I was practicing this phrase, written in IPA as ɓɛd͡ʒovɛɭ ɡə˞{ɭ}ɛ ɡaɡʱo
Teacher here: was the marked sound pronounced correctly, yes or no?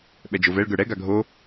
no